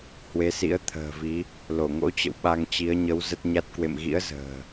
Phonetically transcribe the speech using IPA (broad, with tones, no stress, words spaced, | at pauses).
hwe˨˦sḭ˧˥ə̯ t̪ʰə̤ː˨˩vi˨˦ | lo˧˩ŋo̰˧˥t͡ɕə̰˧˨w ɓa˧ŋt͡ɕi˨˦ə̯ ɲə˨˦w zə˦˥t̚ɲa˦˥t̚ kwḛ˧˨mɣḭ˧˥ə̯ zə̤ː˨˩